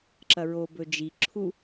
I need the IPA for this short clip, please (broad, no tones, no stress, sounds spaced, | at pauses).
ǁ ɐ ɹ o b ɵ d͡ʒ i ǁʰ u